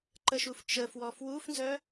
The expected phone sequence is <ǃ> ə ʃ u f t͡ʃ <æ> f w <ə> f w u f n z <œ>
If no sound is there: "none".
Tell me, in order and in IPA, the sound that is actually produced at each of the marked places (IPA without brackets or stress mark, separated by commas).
ǃ, ə, ɔ, œ